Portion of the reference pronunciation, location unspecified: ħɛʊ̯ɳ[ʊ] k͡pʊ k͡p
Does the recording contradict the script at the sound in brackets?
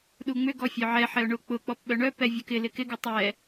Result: no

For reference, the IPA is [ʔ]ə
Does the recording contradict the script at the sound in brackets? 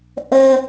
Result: no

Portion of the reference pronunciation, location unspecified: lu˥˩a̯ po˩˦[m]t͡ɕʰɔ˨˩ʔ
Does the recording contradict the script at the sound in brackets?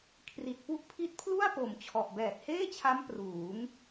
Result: no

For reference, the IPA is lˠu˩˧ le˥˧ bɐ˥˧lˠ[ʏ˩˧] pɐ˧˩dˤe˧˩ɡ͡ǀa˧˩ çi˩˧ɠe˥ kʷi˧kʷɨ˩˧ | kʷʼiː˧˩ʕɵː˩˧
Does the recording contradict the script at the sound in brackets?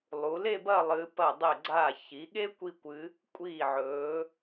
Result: yes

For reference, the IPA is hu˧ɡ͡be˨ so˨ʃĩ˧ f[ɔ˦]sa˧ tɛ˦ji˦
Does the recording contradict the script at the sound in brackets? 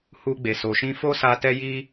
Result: yes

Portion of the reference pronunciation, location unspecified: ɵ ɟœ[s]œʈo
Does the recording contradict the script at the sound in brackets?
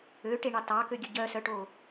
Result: no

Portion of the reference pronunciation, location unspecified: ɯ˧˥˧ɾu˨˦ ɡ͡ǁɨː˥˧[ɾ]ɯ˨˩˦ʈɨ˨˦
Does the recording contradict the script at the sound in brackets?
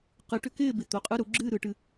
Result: no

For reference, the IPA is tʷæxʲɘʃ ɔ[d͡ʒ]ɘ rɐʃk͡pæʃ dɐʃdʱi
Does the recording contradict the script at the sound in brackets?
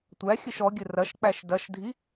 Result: yes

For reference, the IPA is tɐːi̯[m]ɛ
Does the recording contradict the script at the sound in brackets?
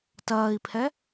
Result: yes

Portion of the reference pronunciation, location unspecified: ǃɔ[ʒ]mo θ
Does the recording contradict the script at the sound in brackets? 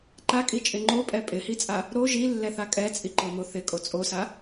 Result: yes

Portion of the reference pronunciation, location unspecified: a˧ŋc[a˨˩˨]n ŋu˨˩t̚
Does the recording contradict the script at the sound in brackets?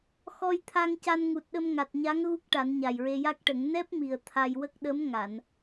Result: yes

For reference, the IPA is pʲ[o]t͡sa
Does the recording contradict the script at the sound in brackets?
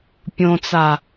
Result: yes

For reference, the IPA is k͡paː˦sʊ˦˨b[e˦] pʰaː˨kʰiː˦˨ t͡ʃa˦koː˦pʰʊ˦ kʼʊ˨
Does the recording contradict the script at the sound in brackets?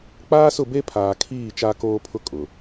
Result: no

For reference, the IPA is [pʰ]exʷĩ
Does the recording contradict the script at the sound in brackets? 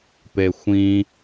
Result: yes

